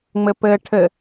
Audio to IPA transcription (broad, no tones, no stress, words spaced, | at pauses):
ŋ͡mɘpɘ ʈʰɘ